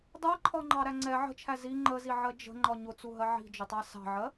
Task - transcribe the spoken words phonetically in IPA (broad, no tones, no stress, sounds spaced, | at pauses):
dˤ ɜ ǃʰ ɒ ŋ͡ǃ ɑ ɾ æ ŋ͡ǀ ɛ ʕ ə̤ t͡ʃʰ æ z i ŋ͡ǃ ə z i ʕ ɜ d͡ʒ ə̤ ŋ͡ǃ ɒ ɲ ʊ t͡s u ɦ ɜ ʕ i̤ d͡ʒ ʊ tˤ ɑ s ɑ̤ ʕ ɜ